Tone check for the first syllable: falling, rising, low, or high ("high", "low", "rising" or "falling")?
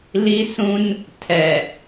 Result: high